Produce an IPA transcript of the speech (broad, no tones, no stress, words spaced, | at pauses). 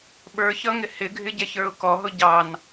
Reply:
ɓə˞çʌŋɪ hɪɡʱɪɟɛçə˞ʊ̯ kɔɦʊ ɟɑn